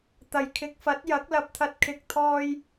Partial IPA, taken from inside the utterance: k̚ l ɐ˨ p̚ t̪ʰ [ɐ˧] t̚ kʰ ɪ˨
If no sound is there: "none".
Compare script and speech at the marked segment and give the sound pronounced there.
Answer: ɐ˧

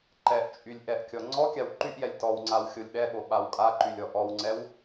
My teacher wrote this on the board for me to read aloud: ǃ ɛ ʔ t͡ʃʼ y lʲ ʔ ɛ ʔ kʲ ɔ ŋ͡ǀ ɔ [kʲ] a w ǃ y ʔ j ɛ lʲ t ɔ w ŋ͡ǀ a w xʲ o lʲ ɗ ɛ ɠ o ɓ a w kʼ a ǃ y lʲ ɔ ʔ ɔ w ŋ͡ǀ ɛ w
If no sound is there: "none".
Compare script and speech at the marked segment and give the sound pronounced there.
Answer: kʲ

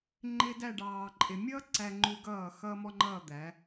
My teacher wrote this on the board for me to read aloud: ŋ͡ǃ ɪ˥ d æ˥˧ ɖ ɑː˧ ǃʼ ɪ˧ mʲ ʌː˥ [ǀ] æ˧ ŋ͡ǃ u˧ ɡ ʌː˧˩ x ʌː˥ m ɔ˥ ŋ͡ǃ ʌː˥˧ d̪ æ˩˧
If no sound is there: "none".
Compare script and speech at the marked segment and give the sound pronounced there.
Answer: ǀ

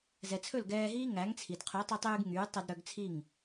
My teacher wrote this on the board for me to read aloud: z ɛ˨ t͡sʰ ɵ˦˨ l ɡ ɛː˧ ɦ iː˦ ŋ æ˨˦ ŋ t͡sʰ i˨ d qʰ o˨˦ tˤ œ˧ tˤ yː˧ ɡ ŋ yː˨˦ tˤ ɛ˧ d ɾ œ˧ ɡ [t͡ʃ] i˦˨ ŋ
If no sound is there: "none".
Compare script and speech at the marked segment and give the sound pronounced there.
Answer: t͡sʰ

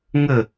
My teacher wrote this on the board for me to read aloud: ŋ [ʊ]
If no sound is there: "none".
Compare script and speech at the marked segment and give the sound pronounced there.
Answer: ə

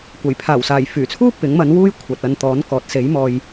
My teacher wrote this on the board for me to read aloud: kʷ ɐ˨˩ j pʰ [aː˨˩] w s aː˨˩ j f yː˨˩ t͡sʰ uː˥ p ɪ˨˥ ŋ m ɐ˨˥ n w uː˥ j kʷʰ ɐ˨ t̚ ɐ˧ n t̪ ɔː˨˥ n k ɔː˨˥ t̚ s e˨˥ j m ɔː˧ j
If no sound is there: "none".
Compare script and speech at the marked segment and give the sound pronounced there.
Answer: aː˨˩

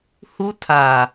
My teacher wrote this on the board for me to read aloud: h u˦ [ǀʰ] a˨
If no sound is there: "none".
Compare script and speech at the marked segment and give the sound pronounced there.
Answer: tʰ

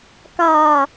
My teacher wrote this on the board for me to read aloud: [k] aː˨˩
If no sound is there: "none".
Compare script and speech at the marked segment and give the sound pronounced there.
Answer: k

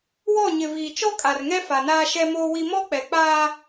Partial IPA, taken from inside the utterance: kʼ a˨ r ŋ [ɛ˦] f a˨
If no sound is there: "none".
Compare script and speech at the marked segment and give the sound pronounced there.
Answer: ɛ˦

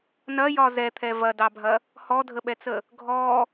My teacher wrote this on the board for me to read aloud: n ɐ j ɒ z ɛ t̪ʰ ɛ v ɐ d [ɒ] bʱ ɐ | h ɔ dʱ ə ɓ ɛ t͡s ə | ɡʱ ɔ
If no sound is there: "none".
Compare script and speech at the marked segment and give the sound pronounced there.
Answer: ɑ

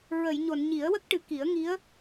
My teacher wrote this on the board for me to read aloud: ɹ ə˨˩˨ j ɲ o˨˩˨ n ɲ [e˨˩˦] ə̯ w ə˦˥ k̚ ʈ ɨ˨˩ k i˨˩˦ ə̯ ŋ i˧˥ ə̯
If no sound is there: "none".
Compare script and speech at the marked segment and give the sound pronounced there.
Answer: i˨˩˦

